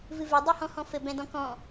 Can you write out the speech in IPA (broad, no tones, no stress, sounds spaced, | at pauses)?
v ɨ v e dˤ o h ɔ̃ h ɔ̃ f ɘ b ɛ̃ d ɔ̃ k ɔ̃